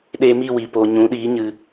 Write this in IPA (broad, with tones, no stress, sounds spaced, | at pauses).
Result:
ɗ eː˧ m i˦˨ w iː˨ p oː˨ ɲ ũ˨˦ ɗ iː˨˦ ɲ ɨ˧